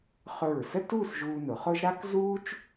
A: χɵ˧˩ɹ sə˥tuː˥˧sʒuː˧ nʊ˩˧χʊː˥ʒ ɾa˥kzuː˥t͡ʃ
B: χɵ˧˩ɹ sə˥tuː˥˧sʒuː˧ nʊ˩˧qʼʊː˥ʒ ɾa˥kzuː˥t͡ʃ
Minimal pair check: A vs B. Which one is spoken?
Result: A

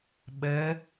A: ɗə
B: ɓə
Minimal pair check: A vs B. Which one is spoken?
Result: B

